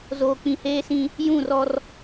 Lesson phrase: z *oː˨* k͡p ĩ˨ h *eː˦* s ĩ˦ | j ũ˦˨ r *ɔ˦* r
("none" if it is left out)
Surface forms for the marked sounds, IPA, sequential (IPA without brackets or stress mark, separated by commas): oː˨, eː˦, ɔ˦